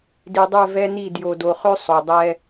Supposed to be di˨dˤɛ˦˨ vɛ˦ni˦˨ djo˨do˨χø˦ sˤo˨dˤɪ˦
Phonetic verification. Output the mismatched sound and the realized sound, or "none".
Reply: ɪ˦ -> ɛ˦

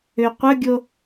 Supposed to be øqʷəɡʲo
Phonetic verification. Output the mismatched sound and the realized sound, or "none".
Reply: none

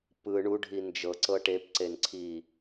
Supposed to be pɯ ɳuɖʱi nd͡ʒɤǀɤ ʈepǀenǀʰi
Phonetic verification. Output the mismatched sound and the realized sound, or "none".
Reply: none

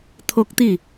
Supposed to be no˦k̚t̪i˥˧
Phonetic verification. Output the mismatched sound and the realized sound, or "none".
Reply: n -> t̪ʰ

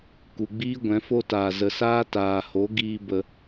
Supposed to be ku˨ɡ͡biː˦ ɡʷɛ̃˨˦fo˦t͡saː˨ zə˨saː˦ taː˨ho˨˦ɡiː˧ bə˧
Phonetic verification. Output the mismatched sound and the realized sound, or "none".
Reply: t͡s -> t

